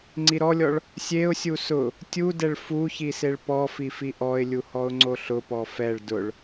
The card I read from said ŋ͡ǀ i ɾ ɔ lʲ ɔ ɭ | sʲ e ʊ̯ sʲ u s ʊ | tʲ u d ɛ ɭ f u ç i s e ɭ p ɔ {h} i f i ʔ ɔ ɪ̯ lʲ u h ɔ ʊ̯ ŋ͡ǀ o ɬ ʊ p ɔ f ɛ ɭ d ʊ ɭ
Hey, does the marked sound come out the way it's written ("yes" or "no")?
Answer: no